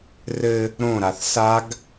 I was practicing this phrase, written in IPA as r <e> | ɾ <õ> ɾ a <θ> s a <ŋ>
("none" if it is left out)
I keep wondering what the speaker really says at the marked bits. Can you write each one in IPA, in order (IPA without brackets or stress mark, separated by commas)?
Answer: ɘ, õ, θ, ɡ